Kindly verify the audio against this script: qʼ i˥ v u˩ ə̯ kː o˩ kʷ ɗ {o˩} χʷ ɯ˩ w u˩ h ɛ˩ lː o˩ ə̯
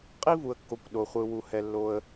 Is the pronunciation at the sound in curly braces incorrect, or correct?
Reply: correct